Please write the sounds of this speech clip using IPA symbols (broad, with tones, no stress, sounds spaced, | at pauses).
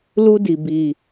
l u˦ d i˨ b i˨